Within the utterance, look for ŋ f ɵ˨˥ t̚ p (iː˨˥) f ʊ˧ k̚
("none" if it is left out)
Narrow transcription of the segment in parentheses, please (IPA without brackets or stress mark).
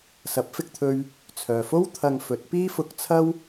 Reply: iː˥